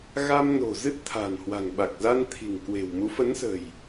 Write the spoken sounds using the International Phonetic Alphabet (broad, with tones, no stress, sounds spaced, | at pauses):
ɣ a˧ m n o̤˨˩ z ɨ˦˥ t̚ t̪ʰ a̤˨˩ n h w a̤˨˩ ŋ ɓ a˨˩ k̚ z a˧ n t̪ʰ i̤˨˩ ŋ k w e̤˨˩ w m u˨˦ f ə˨˦ n s ə̤˨˩ j